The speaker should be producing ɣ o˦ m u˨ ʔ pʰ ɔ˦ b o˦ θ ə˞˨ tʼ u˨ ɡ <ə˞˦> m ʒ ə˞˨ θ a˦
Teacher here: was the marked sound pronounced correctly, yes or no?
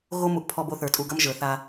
no